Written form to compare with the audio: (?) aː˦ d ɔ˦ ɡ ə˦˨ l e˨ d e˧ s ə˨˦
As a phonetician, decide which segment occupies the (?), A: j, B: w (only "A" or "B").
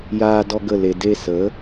A